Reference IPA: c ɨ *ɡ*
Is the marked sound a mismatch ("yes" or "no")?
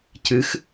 yes